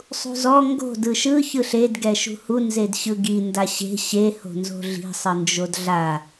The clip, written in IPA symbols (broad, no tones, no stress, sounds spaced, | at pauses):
sˤ ṳ z ɔ ŋ ɡ o̤ d ɯ ʃ ɯ ç ɯ ɬ e d ɡ ɛ ʃ ṳ h u n z e d ɕ ɯ ɡ i n d a ɕ e̤ ɕ e h o̤ n z o̤ ɮ i̤ sˤ ɯ n d͡ʒ o d ɮ a